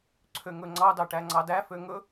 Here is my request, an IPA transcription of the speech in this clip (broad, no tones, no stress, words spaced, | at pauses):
ǀʰøŋɵŋ͡ǀɑdɑ ʈæŋ͡ǀɑdæfø ŋɵ